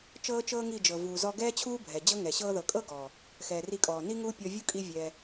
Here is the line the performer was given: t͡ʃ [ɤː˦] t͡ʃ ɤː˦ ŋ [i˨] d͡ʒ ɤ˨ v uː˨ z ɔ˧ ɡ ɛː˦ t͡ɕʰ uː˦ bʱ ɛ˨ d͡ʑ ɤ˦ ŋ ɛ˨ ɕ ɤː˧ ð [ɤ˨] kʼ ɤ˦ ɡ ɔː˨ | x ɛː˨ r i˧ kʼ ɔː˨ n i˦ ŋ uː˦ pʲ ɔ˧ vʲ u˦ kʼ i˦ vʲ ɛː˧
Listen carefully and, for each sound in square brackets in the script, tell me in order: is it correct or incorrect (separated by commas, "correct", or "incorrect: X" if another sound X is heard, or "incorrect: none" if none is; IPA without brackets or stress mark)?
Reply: correct, incorrect: i˦˨, correct